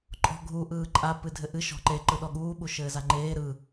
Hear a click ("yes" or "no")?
yes